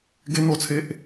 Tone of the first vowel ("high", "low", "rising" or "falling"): high